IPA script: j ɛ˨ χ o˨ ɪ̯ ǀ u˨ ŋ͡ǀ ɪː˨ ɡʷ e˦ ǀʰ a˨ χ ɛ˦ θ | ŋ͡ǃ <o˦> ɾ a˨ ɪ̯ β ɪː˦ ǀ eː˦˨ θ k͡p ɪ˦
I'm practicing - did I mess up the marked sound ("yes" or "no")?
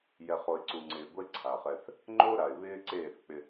no